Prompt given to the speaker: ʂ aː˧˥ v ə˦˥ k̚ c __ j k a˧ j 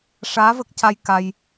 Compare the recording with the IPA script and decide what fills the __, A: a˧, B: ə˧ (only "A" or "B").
A